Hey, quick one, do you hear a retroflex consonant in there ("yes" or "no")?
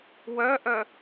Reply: no